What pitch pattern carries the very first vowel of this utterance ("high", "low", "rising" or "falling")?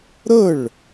falling